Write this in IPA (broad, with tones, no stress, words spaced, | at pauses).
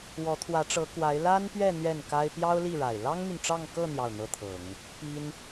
wɔ˧˥t̪ʰwä˧˥ʈ͡ʂɤ˧˥kwa˧˥ɪ̯ la˥npɥɛ˥˧ n̪ɥɛ˥˩nka˥ɪ̯ pjɑ˥ʊ̯li˥˩ɻa˨˩ɪ̯ lɑ˥ŋn̪y˨nʈ͡ʂɑ˥˧ŋkɤ˥˧ n̪jɑ˥˩ʊ̯n̪ɤ˥t̪ʰɤ˨˩˦ŋ | pi˥n